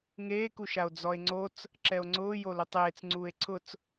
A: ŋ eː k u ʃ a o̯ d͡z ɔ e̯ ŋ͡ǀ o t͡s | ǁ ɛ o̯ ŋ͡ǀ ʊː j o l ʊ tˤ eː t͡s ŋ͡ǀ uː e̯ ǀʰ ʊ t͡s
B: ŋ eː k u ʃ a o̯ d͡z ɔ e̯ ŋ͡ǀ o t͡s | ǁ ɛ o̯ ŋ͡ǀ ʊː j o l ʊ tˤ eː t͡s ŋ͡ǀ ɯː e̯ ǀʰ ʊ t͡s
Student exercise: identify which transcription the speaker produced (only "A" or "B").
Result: A